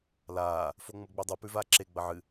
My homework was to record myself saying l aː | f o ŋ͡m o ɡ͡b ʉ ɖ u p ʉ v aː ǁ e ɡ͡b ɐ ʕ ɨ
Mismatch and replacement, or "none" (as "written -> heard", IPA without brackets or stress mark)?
ɖ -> dˤ